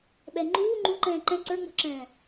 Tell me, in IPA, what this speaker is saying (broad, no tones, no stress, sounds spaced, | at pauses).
ɓ ɛ ŋ͡ǃ uː ŋ͡ǃ ũ ǃ ɛ̃ː ǃ ɛ̃ ǀ ə˞ ŋ͡m ɔ̤ ǁ ɛ̃ː